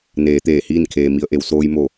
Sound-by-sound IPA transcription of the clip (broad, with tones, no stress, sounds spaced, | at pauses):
n eː˩˧ t̪ eː˧˩ h iː˥˨ n kʰ eː˩ m i˩˧ ə̯ ʔ e˩ w s oː˧ j m o˧˩